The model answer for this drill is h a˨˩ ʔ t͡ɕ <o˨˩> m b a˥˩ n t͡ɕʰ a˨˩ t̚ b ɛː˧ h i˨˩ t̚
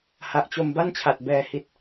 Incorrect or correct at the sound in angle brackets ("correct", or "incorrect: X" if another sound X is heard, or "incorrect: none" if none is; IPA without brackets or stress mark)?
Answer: incorrect: o˧